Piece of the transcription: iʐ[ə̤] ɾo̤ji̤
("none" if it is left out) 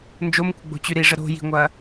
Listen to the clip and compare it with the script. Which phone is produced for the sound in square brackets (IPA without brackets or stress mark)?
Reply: ə